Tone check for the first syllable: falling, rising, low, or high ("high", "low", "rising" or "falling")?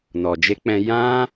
low